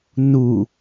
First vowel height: high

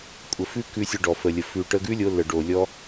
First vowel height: mid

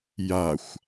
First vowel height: low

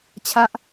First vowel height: low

